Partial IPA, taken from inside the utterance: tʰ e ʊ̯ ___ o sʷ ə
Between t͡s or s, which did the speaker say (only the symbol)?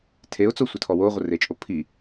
t͡s